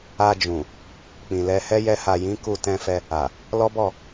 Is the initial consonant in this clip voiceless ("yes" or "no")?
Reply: no